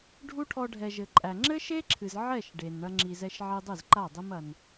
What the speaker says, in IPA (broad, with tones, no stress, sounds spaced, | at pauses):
ɖʱ u˦ ʈʰ ɔ˧ ɖʱ ɛ˨ ʒ ɘ˨ ǃʼ æ˨ ŋ͡ǁ ɘ˦ ʃ e˦ ǁʰ ɨ˨ z ʕ ɛ˦˨ ʃ ɖ e˨ n ɳ ɐ˦ ŋ͡ǁ i˧ z ɛ˦ ʃ ʕ i˧ dˤ ɨ˦˨ z ǃ a˦˨ dˤ i˦ m ɐ˧ n